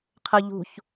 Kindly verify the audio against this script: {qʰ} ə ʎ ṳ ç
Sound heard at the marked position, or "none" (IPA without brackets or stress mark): qʰ